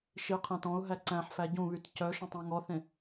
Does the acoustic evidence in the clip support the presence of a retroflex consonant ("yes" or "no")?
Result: no